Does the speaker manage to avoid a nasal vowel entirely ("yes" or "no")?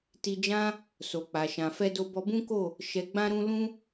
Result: no